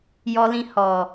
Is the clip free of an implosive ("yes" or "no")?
yes